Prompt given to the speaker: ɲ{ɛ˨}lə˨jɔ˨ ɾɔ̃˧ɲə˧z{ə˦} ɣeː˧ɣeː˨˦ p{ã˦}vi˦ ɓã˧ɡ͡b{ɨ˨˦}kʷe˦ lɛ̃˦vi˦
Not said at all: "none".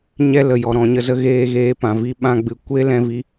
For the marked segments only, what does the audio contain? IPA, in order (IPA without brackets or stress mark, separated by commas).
ɛ˦, ə˦, ã˨, ɨ˨